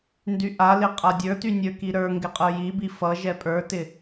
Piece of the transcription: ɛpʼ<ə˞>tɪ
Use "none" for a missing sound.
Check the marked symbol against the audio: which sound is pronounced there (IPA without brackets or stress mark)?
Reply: ə˞